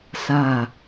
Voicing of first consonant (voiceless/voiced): voiceless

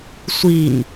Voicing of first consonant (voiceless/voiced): voiceless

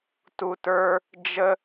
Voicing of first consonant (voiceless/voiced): voiceless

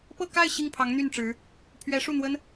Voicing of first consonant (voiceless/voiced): voiceless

